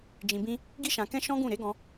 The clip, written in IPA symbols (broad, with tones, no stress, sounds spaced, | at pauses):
d͡ʒ ĩ˧ b ĩ˦ | ɡ i˦ ʃ ã˧ k ɛ̃˦ ʃ ɔ̃˦ ɡ ũ˦˨ ɾ e˨˦ ɡ ɔ̃˧